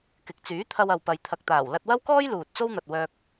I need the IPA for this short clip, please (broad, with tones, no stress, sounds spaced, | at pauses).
k ɪ˨ k̚ t͡s yː˨˥ t̪ʰ ɐ˧ w ɐ˨ w p ɐ˨ j t̪ʰ ɐ˨ k̚ t̪ aː˨˩ w l ɐ˧ t̚ w ɐ˥ w k ɔː˥ j l uː˨ t̚ t͡s o˥ w n̪ ɐ˨ t̚ w œː˧ k̚